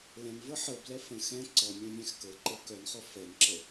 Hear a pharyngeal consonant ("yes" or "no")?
yes